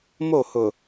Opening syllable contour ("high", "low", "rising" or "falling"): falling